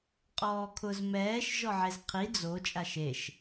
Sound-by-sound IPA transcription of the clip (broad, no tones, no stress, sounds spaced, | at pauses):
qʼ ɔː kʰ ʊ z m ɛː ʃ ʒ ɔ ʕ e z qʰ i d͡z o t͡ʃʼ a ʃ e ʃ